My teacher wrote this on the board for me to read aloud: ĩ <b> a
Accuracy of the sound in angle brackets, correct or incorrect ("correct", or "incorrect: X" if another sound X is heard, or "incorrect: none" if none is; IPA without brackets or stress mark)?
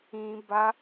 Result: correct